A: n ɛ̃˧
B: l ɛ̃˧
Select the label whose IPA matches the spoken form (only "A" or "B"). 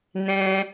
A